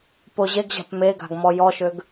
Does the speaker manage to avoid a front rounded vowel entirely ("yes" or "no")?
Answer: no